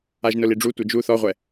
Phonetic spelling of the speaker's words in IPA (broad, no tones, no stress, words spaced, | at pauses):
aʒnʊliɖ͡ʐu tʷɛd͡ʒu θɔʁʷɛ